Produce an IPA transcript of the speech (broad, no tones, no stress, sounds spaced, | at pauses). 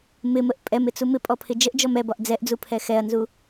m ɪ m ə ʔ pʼ ɛ m ɪ t͡s u m ɪ pʼ ɔ pʰ ɪ d͡ʒ ə ʔ d͡ʒ ɔ m ɛ b ɒ ʔ d͡z ɛ ʔ d͡z u pʰ ɛ x ɛ ɐ̯ n z u